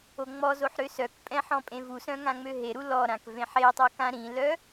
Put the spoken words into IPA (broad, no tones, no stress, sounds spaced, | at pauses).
o ŋ͡m ɔ z o ħ ɾ ø s œ k pʼ ɛ̃ ħ ɔ̃ pʼ ẽ v u s œ̃ ŋ ã ŋ͡m ø ɦ e ɾ u l ɔ ɾ ã k v ẽ ħ e tˤ o k ã ɾ ĩ l œ